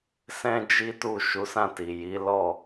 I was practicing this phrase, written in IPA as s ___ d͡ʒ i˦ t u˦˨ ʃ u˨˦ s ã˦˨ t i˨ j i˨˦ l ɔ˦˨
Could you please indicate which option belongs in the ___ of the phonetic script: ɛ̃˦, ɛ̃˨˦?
ɛ̃˦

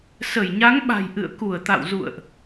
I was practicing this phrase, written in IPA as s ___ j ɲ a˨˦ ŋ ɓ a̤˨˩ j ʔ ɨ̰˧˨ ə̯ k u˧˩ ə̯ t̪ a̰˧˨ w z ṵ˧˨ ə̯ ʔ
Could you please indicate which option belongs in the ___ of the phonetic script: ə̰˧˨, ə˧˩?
ə˧˩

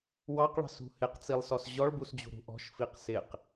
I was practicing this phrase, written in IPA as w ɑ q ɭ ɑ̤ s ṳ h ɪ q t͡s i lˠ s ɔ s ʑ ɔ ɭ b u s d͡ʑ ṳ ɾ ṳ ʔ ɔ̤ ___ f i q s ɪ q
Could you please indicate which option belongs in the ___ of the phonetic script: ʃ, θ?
ʃ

